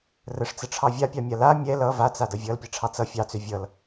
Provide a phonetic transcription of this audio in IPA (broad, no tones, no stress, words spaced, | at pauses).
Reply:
rəʂt͡səʈ͡ʂʰɑ vʲapʲɑmʲa la mʲɛ lʌ vat͡sadʌ vʲʌlpʲɛʈ͡ʂʰɑ t͡sʌ fʲɑt͡sø vʲʌl